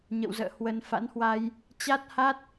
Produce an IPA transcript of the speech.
ɲ ə̰˧˨ w z ə̰ː˧˨ h w ə˧ n f a̰˧˥ n h w a˧ j | t͡ɕ a˦˥ t̚ h a˦˥ t̚

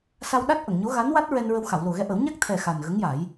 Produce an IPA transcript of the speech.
s a˧ w ɗ a˦˥ t̚ ʔ ə˨˩˨ ŋ ɲ o˧˥ ɣ a˧˥ n w a˦˥ t̚ ɹ ɛ˧ n ɹ ə˧ w x a˨˩˨ w l o˨˩ ɣ ɛ˧ ʔ ə˨˩˦ w ɲ a˦˥ k̚ t̪ʰ ɛ˨˩ x a˨˩ n ɣ ə˧˥ ŋ j a˨˩˦ j

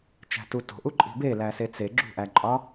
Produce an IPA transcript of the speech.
t͡ʃ æ̤ t u t o̤ ʔ u ǃʼ i̤ b e l æ s e t͡s e ɡ͡ǁ ṳ ʔ æ ǃʼ ɒ

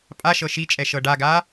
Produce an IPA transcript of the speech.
pʼ a ʃ ɤ ʃ i t͡ʃʼ ɛ ʃ ɤ ɖ a ɡ a

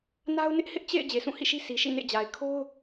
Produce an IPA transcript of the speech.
n a˦ ʊ̯ n ɪ˦ ʔ h ɪ˦ ʔ t͡ɕ ḛ˦˨ ɪ̯ d͡ʑ e˨ sʰ ũ˦˨ h ḭ˦˨ ʃ i˦ sʰ i˨ ʃ ḭ˦˨ n ḛ˦˨ d͡ʑ a˨ ɪ̯ kʰ o˦ ʊ̯

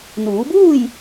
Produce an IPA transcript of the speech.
n uː˩˧ b uː˥˨ j

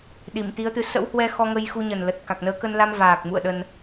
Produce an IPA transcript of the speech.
ɗ i˧˩ m t̪ i˨˦ ə̯ t̪ ɨ˨˦ s ə̰˧˥ w h w ɛ˧ x ɔ˧ ŋ ə˧ j x u˧ ɲ ə˨˩ n l ə˨˩ t̚ k a˨˩ k̚ n əː˨˦ k ə˧ n l a˧ m v aː˨˩ k̚ m ṵ˧˨ ə̯ ɗ ə˧ n

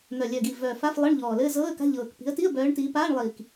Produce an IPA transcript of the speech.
n̪ œ˨˩ lʲ œ˨˩ ɡ i˨˩ v œː˨˩ f a˧˥˧ f lˠ ɤ˧˥˧ ɳ ʎ ɔː˨˩ l ɘː˧˥˧ z ɤː˧˥˧ ə̯ k a̤˧˥˧ ʎ ɤː˨˩ k p i̤˨˦ ə̯ t i˧˥˧ ə̯ b œː˨˦ ɳ t iː˨˦ p aː˧˥˧ ɳ lˠ iː˨˩ k

